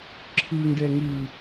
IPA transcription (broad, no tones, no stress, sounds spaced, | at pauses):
ǁʰ ɯ ŋ ɖ ɛ ŋ ɯ